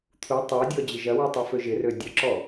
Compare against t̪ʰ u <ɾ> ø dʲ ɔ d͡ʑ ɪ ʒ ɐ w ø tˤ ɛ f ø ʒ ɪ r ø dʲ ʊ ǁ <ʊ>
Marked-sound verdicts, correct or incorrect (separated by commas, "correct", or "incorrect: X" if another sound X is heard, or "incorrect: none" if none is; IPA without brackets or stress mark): incorrect: tˤ, incorrect: ɔ